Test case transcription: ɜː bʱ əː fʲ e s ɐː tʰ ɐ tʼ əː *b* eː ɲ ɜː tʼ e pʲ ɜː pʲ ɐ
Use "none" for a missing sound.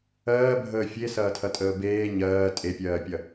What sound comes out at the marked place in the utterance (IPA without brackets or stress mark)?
b